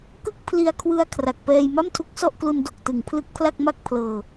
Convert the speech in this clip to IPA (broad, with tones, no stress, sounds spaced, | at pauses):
k ɯ˥˩ k̚ pʰ l i˧ a̯ kʰ w ɯ˧ a̯ kʰ r a˨˩ k̚ p ɛː˧ j m a˥˩ m tʰ u˦˥ k̚ s ɔ˥˩ ʔ k l u˧ n d o˨˩ k̚ t ɯ˩˦ ŋ pʰ l ɯ˦˥ k̚ pʰ l a˥˩ k̚ m a˥˩ k̚ pʰ l ɤː˧